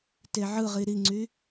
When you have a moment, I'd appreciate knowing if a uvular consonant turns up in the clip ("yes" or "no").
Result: yes